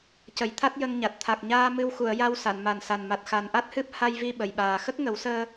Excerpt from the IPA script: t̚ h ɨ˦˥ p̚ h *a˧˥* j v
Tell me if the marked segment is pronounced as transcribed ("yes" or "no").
no